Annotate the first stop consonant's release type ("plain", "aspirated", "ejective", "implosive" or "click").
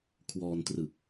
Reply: aspirated